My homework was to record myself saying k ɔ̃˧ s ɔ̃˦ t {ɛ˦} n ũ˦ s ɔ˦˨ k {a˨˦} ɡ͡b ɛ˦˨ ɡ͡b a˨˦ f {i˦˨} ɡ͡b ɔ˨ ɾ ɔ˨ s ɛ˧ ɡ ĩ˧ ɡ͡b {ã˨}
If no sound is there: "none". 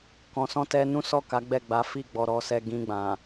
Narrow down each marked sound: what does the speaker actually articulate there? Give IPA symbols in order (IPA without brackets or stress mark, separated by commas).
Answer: ɛ˦, a˨˦, i˦˨, ã˨